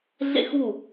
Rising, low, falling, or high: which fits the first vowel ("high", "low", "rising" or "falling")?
falling